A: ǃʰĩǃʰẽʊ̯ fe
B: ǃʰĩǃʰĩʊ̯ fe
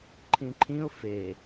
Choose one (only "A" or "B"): B